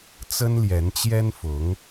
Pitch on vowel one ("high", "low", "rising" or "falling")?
high